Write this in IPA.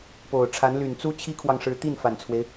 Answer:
p o˨˩ ʊ̯ ʈ͡ʂʰ a˧˥ n l y˨˩ n t͡s u˥ t͡ɕʰ i˥ kʰ w ɑ˨ ŋ ʂ ɻ̩˧˥ t̪ i˥˩ n f a˨˩ n t͡sʰ w e˦ ɪ̯

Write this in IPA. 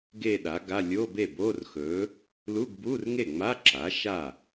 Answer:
ɡ e˥˧ ɗ a˩˥ ɡ a˧˥˧ lʲ oː˧˥˧ b e˥˩ b oː˧˥˧ r x ɵː˩˥ | l u˧˥˧ ɡ b uː˧˥˧ r ŋ e˥˩ ŋ͡m a˧˥˧ ǁ a˩˥ ʃ a˥˩

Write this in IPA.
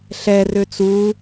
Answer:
ɬ ɛ r ø t͡s u

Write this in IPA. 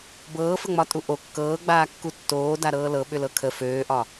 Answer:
b ɤː f ə ŋ͡m ɒ tʼ u ʔ o kː ɤː ɡ͡b aː kː u tː oː d a ɾ ɤː l ɤ ɓ ʏ l ɤ kʰ ə f øː ʔ ɒ

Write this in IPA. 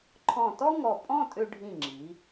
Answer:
ǃʰ ɔ̃˧˩ t ɔ˥ ŋ ɔ˧˩ pʼ ɔ̃˥˧ tʼ ʏ˧ ɖʱ ĩ˧˩ ŋ͡ǁ i˩˧

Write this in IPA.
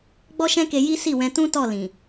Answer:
ɡ͡b ɔ˦ ʃ ɛ̃˦ k e˧ j i˦ s i˦˨ w ɛ̃˧ t ũ˦ t ɔ˦˨ l ĩ˨

